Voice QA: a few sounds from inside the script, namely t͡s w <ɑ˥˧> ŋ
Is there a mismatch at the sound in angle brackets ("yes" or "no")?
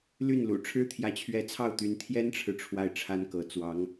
yes